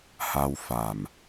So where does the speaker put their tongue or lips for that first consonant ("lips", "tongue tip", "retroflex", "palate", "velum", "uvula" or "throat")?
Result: throat